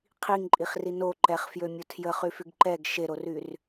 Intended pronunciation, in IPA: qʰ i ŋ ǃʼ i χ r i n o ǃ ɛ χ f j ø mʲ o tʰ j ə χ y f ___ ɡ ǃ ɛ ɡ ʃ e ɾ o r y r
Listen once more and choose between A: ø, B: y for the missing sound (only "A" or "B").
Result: B